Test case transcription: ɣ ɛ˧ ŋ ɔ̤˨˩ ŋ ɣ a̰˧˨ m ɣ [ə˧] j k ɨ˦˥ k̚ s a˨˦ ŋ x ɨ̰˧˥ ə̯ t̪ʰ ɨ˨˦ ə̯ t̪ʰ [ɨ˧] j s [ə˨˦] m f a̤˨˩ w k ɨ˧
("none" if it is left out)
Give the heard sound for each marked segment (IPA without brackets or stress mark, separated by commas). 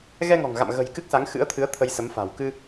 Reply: ə̤˨˩, ə˧, ə˨˦